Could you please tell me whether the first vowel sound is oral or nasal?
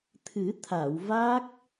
oral